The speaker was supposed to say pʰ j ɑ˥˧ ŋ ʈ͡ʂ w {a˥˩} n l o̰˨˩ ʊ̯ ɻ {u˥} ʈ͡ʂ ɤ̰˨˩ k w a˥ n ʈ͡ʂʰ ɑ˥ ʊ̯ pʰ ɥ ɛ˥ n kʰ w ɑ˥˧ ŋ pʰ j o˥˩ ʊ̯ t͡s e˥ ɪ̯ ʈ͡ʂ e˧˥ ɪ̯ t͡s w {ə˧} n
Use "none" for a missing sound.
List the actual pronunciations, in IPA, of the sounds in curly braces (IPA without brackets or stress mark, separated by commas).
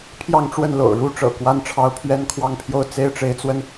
ə˥˩, u˥, ə˧